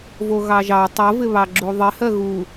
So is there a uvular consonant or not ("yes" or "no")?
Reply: no